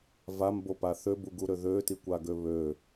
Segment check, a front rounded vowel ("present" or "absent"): present